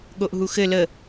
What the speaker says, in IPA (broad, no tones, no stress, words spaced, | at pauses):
ɠoʔɦuxɘ lə